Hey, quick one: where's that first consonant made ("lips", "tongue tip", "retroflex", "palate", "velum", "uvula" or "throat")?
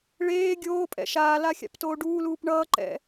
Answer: retroflex